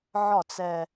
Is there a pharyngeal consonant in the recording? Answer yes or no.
yes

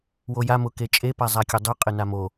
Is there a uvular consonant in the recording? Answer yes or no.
yes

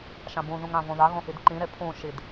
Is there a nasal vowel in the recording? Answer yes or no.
yes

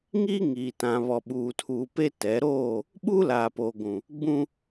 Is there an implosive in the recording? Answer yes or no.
yes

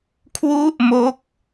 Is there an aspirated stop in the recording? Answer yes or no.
yes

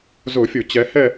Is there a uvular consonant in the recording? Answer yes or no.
no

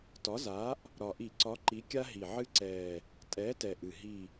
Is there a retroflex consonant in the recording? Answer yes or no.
no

